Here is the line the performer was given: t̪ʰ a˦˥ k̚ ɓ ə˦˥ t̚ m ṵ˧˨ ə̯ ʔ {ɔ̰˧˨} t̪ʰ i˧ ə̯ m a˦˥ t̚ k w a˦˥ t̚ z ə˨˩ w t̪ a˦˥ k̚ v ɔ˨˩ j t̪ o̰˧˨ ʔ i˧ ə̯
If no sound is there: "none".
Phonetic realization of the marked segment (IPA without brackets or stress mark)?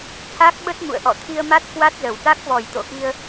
ɔ̰˧˨